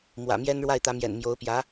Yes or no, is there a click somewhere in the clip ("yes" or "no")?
no